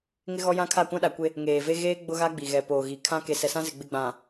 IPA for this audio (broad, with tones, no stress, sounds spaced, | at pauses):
ŋ ɪ˦ ɣ ɔ˦ j ã˦ kʰ a˦˨ kʷ ã˦ ɗ a˨ kʷ e˦ | ŋ eː˨ v e˦ ɣ eː˦ ɡ͡b ʊ˦ ɣ a˦ ɡ͡b i˨ ɣ ɛ˨ p oː˨ ɣ i˨ kʰ ã˦ k e˨ s ɛ˨ s ã˦ z ɪ˨ ɡ͡b ɪ˦ ɡ͡b ã˨